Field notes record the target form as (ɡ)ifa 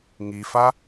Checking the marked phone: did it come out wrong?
yes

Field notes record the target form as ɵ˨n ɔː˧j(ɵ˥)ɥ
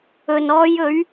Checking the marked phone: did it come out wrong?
yes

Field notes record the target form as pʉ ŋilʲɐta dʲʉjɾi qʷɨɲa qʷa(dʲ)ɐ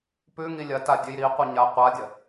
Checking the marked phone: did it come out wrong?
no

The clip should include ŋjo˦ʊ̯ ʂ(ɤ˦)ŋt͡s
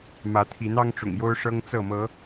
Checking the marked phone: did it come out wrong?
no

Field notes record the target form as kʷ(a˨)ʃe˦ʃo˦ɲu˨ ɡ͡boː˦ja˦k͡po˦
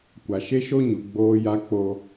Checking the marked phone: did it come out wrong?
no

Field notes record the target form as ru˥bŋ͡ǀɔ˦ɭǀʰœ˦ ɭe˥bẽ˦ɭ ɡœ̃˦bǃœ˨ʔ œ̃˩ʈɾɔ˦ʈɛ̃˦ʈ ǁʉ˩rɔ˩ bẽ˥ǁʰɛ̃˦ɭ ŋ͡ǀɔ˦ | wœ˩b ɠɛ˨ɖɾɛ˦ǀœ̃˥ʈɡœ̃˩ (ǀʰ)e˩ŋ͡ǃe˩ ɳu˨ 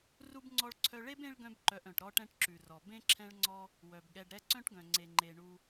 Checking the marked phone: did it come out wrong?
yes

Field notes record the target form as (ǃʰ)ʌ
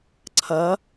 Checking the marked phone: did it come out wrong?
yes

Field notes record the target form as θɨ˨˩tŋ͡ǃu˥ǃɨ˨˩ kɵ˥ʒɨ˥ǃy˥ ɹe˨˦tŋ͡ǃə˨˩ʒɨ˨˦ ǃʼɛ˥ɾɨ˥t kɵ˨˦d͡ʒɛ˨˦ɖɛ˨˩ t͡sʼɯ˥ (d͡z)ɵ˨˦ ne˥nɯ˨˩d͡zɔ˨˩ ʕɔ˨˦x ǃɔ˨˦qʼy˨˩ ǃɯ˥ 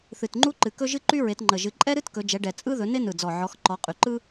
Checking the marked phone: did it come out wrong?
yes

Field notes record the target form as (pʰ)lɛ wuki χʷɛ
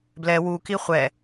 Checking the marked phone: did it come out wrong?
yes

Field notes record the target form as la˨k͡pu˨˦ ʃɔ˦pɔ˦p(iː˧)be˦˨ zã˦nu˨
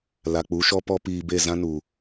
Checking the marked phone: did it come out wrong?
no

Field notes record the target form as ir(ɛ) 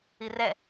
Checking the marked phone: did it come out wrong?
no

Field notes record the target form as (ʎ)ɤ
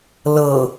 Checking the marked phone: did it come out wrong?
yes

